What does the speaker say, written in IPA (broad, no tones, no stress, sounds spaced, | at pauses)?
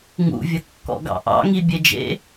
ŋ ṵ vʲ ə kː ɔ̰ ɡ ɑ̰ ʔ ɑ̰ ŋ i bʲ e d͡ʒ ḛ